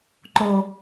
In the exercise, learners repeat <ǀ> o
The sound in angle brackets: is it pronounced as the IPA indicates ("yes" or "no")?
no